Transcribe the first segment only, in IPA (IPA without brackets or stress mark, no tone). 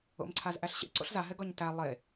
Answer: o̰